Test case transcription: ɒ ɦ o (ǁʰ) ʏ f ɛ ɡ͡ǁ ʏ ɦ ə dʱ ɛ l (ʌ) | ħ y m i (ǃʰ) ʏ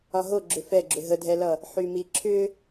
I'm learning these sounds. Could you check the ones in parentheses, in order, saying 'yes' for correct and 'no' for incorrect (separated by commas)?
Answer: no, yes, no